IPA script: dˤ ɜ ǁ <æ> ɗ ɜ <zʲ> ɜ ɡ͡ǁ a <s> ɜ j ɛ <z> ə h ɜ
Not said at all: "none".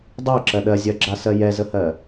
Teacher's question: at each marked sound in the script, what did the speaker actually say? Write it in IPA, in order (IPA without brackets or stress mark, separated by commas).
ɜ, zʲ, s, z